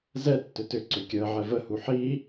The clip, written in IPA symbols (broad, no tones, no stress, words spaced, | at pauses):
zɛ tːʏtʏǀʏ kʲəːʕɛ vəhu ħi